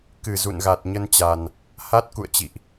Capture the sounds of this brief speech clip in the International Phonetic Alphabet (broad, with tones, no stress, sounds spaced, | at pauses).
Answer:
k ɨ˧˩ z ṵ˧˨ n ɣ a˨˩ t̚ ɲ ə˧ n t͡ɕ a˨˩ n | h a˦˥ t̚ k ṵ˧˨ ə̯ t͡ɕ ḭ˧˨ ʔ